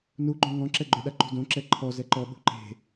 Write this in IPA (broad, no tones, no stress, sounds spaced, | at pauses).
n u ɡ͡ǃ õ ŋ ɔ̃ ǁ ɛ ɡ͡ǃ ʏ ɗ a ǃ ṳ d õ ǁ ɛ ǃʰ ɔ z ɛ ǃ ɔ ɓ ṳ ǃ e̤